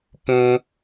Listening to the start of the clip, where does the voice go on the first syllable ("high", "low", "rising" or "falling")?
high